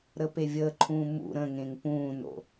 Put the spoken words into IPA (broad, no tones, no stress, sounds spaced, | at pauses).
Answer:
ɾ ə p e vʲ əː ǃʰ ũː m ṵ ɾ ə̃ ŋ ẽ ŋ p ũː n o̰